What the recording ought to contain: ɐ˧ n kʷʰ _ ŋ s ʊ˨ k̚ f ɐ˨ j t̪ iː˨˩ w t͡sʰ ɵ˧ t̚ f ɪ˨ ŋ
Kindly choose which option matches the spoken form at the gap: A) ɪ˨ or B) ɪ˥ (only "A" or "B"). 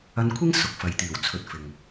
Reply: B